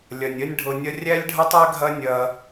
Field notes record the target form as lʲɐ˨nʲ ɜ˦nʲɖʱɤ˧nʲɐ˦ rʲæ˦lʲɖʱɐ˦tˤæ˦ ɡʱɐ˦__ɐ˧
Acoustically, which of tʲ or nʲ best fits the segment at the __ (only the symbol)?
nʲ